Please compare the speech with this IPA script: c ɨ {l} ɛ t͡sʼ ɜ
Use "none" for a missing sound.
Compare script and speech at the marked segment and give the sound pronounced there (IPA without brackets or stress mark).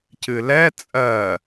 l